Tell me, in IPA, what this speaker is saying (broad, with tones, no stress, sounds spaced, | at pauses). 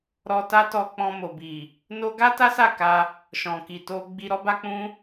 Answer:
ɾ ɔ˧ t a˦ t ɔ˧ k͡p ɔ̃˧ m o˨ b i˨ | n o˦ ɡ a˦ t a˦ s a˦˨ k a˧ | ʃ ɔ̃˨ k i˨ t o˧ ɡ͡b i˧ ɾ ɔ˦ b a˦ k͡p ũ˦